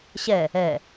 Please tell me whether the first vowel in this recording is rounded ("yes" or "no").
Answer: no